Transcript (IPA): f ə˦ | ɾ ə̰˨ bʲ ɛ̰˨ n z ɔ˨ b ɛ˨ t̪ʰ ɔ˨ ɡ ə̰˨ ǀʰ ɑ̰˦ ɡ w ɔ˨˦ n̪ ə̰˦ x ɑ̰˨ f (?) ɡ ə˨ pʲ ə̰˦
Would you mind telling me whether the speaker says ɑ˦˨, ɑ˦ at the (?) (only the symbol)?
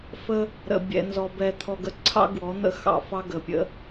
ɑ˦